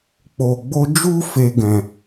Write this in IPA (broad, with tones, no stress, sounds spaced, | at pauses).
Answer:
k͡p o˨ ɡ͡b o˧ d͡ʒ u˦ f e˧ ɡ ɛ̃˨